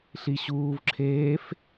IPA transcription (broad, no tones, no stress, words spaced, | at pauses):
ɬiɕuːvǁʰeːf